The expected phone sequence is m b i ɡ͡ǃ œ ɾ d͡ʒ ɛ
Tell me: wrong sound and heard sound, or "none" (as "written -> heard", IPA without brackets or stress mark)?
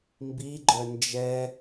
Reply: ɾ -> n